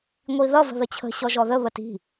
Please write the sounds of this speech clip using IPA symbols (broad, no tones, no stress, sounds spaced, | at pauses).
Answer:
ŋʷ i ð ʌ v ə̤ ð ə t͡ɕʰ ə̤ ɕ ɔ ʒ ɔ ð ə β ə t i̤